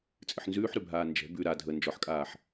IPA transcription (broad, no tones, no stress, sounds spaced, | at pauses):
t͡sʼ ɨ ħ n z ʉː ħ ɾ ʉ bʱ aː n d͡ʒ ɛ̤ b ʉ ɾ a dʱ ə n d͡ʒ ɔ ħ kʼ aː ħ